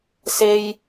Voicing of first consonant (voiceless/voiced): voiceless